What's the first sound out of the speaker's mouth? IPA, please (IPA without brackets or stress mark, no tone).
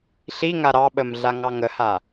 ɬ